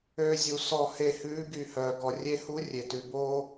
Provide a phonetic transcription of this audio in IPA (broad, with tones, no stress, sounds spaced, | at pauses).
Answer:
øː˧ zʲ u˨˩˦ s ɔ˧˩ h e˧˩ h ʉː˧˥ ɡ y˧˩ h œː˩ ɡ ɔ˩ rʲ e˧ h u˧˥ rʲ e˩ t ʉ˩ b oː˧